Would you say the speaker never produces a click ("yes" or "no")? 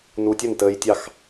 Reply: yes